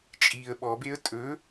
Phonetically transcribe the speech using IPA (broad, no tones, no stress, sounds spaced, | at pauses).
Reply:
t͡ʃʼ i ə̯ ɓ ɔ b e ə̯ tʼ ɵ